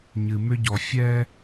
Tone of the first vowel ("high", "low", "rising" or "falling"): low